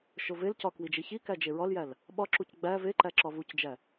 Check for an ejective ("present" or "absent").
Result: absent